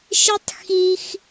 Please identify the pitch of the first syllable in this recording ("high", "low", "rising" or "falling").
high